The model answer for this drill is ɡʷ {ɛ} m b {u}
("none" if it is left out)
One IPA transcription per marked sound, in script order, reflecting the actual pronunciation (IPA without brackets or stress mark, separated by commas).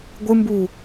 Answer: ɨ, u